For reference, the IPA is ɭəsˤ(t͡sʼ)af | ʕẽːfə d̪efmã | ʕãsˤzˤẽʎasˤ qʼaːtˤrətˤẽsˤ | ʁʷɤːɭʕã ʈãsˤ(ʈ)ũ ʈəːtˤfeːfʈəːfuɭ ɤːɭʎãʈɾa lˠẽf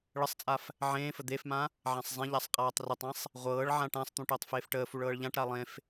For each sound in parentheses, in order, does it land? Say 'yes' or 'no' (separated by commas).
yes, no